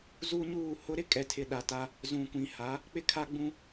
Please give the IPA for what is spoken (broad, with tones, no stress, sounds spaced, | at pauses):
z u˦ ɲ uː˦˨ h ʊ˦ ɾ ɪ˦ kʼ ɛ˨ tʰ ɪ˨ ɗ a˨ t a˦ | z ũ˨ kʷ ĩ˨ h a˨˦ | k͡p ɪ˦ kʰ a˦ ɡ͡b ũ˦